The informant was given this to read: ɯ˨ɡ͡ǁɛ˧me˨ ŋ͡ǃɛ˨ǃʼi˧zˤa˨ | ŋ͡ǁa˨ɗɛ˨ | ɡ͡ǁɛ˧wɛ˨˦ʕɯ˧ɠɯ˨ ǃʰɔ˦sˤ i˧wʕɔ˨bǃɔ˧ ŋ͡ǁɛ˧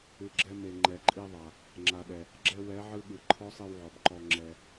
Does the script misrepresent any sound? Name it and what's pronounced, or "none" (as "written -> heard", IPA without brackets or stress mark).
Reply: zˤ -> ðˤ